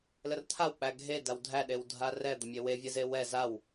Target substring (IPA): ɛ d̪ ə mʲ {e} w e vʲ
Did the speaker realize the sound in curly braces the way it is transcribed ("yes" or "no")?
yes